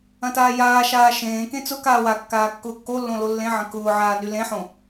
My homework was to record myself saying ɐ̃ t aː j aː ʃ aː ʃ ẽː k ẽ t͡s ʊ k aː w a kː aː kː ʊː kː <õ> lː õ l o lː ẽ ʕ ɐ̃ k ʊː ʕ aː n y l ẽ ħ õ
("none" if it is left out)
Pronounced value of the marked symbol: o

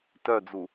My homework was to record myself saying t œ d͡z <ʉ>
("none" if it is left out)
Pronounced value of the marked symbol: u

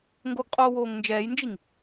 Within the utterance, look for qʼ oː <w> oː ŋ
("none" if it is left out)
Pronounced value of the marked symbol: w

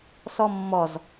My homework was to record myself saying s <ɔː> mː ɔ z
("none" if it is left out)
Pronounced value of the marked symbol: ɔ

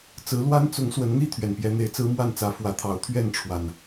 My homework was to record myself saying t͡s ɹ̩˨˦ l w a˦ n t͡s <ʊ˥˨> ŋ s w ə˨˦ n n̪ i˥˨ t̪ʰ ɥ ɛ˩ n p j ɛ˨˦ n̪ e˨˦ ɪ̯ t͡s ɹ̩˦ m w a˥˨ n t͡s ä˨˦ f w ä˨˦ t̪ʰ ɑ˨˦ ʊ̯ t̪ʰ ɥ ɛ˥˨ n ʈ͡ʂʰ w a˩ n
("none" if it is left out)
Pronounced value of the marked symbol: ʊ˨˦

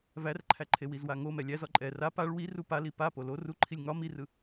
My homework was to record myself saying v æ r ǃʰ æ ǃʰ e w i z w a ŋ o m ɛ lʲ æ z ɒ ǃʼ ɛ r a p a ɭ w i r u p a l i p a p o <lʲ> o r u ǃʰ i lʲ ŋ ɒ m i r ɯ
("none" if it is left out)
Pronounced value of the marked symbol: l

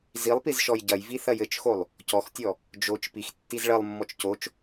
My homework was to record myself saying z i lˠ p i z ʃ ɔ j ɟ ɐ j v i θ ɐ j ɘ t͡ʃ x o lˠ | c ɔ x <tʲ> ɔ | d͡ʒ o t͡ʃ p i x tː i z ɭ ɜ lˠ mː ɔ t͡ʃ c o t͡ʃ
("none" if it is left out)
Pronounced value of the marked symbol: tʲ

